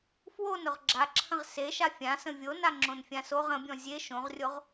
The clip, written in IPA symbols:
fwon ʊʁɡ͡ǁaǁʰə̃ʁ seʃa fʲãsə̃ vʲona ŋ͡ǁõnfʲãsoʁ ə̃bʲɔ̃ zʲe ʃõʁrʲoʁ

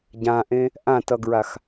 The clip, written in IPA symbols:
ɟãʔẽ | ʔãtʌɡɹax

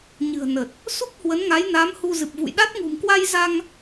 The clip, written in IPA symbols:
ɲɨ̤˨˩ə̯nə˨˩t̚ | su˦˥k̚hwə˨˦nŋa˨˦jna˨˦m hu˧ zɨ˨˩p̚vṵ˧˨jɗa˦˥t̚ ŋṳ˨˩mkwa˧jza˧ŋ

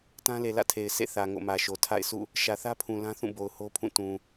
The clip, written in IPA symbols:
tã˦le˨ lä̰˦˨tʰe˨ɪ̯ sḛ˦˨θä˨ ŋo̰˦˨mä˨ʃo˨ tʰa̰˦˨ɪ̯ sʰṵ˦˨ | ʃä˨θä˦pʰũ˨ lã˦θũ˦˨bo˨ʊ̯ ho˦pʰũ˦˨ tũ˨

